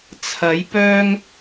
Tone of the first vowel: rising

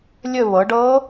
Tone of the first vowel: falling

